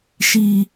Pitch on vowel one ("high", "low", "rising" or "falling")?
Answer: high